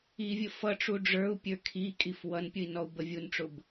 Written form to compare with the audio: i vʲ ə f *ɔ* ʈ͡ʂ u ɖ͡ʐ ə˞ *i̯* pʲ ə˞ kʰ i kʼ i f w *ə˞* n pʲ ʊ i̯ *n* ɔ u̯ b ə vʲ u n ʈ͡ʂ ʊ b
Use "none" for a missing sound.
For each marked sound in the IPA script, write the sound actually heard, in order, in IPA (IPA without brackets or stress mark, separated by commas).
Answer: ʌ, u̯, ʌ, n